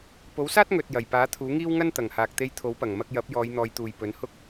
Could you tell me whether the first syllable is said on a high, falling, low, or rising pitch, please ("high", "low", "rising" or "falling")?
rising